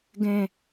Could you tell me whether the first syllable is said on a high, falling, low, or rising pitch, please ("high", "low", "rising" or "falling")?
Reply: low